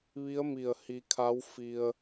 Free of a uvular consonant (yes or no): yes